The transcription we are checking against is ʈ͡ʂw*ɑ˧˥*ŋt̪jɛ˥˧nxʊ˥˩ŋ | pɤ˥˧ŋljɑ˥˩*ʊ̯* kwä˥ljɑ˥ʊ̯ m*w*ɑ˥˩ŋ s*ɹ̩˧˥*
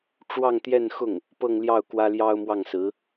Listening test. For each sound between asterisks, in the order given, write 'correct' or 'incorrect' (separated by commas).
incorrect, correct, correct, correct